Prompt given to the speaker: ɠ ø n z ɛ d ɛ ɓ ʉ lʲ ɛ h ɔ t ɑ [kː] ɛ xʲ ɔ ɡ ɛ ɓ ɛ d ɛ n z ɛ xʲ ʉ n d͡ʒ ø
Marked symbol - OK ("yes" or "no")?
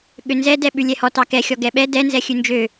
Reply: no